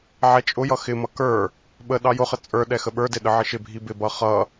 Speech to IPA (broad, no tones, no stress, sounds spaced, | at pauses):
ʕ ɛ t͡ʃʼ ʊ j ʌ x ɪ m ʌ k ə˞ | ɓ ə ɗ ɑ j ʊ χ ə t͡sʼ ə˞ ɗ ɛ x ə ɓ ə˞ d ɪ ɗ ə ʕ ɪ ʃ ɪ bʱ i b ɪ b ʌ χ ʌ